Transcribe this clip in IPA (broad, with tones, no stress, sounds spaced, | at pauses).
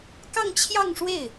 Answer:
k ɑ˥˧ ŋ t͡ɕʰ j ɑ˥˧ ŋ ʂ w e˥˩ ɪ̯